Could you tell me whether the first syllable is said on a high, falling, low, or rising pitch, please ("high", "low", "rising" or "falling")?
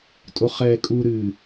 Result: low